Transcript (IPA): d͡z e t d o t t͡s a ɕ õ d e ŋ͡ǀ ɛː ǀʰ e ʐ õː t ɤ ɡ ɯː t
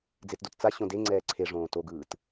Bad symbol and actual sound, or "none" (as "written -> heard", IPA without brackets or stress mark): ɤ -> o